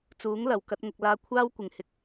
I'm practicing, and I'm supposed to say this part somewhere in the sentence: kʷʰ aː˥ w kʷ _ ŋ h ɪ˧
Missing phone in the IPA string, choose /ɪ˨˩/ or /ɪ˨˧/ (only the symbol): ɪ˨˩